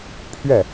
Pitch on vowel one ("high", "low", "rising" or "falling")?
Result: falling